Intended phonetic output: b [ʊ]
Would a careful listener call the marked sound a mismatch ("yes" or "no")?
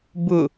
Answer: no